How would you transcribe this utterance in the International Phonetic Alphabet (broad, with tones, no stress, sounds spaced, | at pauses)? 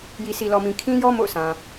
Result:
j i˨ s i˨ l ɔ˨ m ĩ˨ kʰ ĩ˦ j ɔ˦ m o̰˦˨ ʊ̯ s ã˨